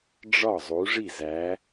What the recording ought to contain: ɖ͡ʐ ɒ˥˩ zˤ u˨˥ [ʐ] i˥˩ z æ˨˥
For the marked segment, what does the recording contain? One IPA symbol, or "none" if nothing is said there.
ʐ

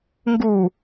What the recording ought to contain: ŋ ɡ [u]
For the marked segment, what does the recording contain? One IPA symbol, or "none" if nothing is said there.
u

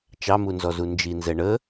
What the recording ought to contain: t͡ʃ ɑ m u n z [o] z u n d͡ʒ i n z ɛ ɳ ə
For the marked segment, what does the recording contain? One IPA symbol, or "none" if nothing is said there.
ɔ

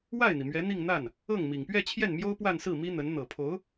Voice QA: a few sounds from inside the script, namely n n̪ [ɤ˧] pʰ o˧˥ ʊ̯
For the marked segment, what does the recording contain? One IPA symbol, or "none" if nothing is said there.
ɤ˨˩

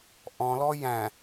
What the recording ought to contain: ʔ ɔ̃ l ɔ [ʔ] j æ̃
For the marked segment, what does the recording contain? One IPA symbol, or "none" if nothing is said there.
none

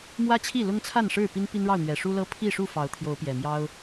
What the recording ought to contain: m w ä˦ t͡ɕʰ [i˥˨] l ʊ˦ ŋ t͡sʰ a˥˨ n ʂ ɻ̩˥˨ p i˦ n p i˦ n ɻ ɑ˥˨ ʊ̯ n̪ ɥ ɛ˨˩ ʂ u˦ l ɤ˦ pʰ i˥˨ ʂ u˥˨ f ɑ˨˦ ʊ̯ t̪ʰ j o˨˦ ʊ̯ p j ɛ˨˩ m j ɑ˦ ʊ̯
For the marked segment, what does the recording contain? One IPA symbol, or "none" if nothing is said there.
i˥˨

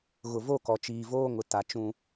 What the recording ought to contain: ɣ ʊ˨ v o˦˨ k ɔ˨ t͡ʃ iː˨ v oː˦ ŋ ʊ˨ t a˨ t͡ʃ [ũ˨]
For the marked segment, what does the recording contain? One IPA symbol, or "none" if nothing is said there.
ũ˨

